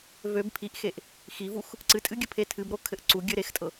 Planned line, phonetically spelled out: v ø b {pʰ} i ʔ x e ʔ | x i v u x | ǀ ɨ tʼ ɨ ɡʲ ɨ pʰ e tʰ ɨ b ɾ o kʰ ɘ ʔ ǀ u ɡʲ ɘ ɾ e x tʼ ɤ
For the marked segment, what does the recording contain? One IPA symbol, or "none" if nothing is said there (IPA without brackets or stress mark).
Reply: pʰ